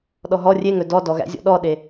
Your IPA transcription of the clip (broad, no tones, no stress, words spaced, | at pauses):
ɗɔɦɔ rʲeŋɵ dɔdɔɣæ̰zʲɔ̰ ɗɔɗe